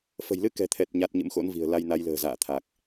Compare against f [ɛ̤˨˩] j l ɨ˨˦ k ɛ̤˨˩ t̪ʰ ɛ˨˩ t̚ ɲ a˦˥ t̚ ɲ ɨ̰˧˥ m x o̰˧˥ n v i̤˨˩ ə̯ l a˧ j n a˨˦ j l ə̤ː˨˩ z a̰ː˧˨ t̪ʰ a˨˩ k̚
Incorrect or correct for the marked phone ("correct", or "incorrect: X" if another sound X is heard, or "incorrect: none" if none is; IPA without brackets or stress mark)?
incorrect: ə̤˨˩